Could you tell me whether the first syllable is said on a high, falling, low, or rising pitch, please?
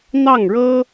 falling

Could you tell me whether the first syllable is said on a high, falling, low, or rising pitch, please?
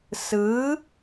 rising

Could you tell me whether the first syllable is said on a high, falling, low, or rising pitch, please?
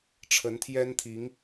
rising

